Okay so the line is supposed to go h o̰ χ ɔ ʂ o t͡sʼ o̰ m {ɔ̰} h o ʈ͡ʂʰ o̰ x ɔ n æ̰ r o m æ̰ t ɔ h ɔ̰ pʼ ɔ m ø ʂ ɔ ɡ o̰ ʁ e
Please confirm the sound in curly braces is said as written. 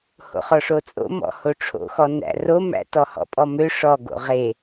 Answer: yes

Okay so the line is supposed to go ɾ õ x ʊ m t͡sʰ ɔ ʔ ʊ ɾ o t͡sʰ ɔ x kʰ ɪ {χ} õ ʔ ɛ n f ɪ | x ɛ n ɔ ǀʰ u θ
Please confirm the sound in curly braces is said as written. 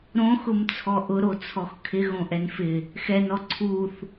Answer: no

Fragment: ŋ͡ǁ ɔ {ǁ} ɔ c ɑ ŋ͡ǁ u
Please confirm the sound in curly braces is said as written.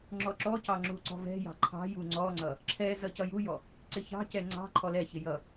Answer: yes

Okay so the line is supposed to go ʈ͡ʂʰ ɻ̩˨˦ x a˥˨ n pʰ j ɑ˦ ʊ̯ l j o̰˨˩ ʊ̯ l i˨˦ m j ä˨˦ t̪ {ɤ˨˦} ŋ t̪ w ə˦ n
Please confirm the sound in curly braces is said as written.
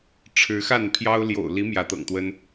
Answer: no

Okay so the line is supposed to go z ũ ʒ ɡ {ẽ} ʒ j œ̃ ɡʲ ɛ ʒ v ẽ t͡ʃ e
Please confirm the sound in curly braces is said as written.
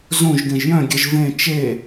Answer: yes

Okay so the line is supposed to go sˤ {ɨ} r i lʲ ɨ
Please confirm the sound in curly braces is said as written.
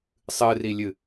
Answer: yes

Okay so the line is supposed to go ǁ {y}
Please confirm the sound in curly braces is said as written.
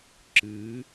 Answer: no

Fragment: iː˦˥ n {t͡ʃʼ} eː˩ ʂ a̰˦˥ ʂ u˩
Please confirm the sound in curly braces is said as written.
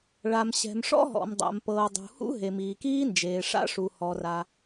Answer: no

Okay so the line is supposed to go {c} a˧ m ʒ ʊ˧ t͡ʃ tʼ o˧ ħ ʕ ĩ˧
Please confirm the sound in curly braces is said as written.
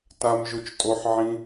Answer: no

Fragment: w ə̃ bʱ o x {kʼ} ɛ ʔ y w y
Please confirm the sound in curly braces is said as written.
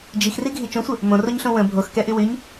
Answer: no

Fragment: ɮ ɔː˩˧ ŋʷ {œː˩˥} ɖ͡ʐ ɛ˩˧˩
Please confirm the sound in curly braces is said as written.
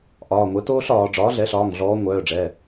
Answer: no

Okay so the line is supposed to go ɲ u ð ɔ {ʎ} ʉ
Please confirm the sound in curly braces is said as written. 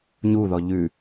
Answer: yes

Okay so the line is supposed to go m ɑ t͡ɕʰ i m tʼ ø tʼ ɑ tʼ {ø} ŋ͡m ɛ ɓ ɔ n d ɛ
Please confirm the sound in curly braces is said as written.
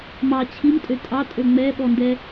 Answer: yes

